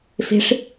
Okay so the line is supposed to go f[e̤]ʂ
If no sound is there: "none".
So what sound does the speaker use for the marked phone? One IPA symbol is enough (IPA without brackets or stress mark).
e̤